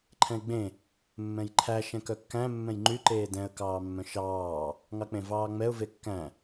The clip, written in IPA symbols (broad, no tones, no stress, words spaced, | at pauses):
ǃʰɛ̃ɪ̯ɡ͡bẽ | mːɛ̃jǃʰæ ʃɛ̃kœkːæ̃ mːɛ̃jŋ͡ǃy ǃeːdɛ̃ə̯ kɑːmːœ̃ʃɑː | ŋɑk͡pẽvɑːŋ͡mɛʊ̯ vekːæ̃